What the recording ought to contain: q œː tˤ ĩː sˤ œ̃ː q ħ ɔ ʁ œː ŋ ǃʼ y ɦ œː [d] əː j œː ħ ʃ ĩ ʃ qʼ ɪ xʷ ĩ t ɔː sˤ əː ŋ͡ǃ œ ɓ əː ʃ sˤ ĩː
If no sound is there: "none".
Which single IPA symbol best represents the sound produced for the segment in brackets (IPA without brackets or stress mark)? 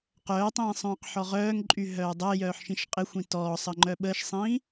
dˤ